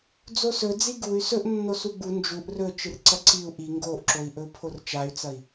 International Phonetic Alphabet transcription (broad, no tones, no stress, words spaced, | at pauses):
d͡zosɵ d͡ziɡuy̯ sɵʔnːo suɡ͡bu nd͡ʒuʔ rɵ t͡ʃɨrǀɐǀiu̯ ʔi ŋɡoʔǁoi̯ ʔɵu̯pʰort͡ʃay̯t͡sɐi̯